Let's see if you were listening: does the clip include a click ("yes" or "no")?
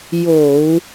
no